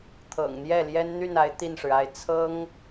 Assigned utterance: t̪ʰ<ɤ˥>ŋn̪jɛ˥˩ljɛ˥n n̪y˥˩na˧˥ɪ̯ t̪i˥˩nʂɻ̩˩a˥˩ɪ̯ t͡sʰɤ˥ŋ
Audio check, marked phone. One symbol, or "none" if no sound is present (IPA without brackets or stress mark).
ɤ̰˨˩